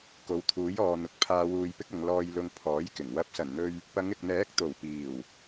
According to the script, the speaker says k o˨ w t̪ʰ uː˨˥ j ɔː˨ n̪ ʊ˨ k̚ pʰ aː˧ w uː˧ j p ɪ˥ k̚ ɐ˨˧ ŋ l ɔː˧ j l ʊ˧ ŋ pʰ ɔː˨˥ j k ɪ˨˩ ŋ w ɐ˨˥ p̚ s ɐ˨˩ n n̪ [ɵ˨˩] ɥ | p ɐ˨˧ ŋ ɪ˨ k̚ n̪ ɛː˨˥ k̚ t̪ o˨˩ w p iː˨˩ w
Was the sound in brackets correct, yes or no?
no